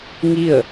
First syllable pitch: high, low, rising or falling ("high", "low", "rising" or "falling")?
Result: falling